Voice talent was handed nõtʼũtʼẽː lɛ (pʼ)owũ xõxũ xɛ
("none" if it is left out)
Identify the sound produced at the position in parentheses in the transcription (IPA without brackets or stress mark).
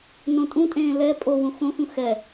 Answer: pʼ